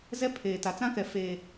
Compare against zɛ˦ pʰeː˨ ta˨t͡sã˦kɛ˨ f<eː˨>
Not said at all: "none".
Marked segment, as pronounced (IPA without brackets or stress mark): eː˨